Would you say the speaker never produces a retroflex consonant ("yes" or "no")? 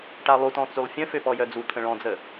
no